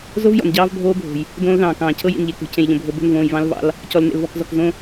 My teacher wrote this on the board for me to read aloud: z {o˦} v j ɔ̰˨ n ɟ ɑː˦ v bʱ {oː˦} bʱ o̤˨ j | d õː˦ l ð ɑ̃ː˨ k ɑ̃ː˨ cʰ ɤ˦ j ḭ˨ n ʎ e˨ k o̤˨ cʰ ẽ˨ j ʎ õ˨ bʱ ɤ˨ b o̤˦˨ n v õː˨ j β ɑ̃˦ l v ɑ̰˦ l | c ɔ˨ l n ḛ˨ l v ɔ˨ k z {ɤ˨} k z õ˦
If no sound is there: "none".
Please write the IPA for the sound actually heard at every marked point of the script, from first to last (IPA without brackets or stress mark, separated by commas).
o˦, oː˦, ɔ˨